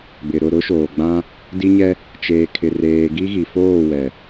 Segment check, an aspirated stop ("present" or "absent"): present